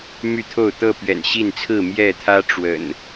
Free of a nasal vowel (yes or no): yes